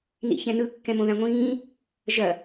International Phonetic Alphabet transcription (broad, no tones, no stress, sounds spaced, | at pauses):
n ḭ ç ɛ̃ n ɯ kː ɛ̃ m õ ð ã ŋʷ ĩː | ʒ ɐ